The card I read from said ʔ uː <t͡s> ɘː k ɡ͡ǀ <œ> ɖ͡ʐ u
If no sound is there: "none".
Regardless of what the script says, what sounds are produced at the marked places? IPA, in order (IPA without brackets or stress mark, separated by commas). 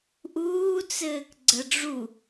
t͡s, ə